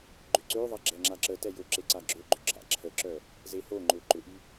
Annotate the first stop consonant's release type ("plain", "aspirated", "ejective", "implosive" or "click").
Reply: click